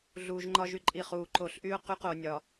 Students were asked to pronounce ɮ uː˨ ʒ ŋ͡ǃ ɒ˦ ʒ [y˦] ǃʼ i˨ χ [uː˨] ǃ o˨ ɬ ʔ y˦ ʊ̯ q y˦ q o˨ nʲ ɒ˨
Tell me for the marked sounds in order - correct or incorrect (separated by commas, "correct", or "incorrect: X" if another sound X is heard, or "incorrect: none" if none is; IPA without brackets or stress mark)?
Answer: correct, correct